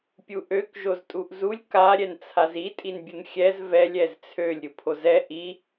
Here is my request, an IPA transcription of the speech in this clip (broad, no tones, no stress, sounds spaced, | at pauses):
pʲ u ʔ ø k ʒ o z tʼ u ʔ z u lʲ k a ɾʲ ɛ n t͡sʰ a z i tʼ i n bʲ u n xʲ ɛ z v ɛ lʲ ɛ z t͡sʰ ø lʲ ɾʲ u pʰ o z ɛ ʔ i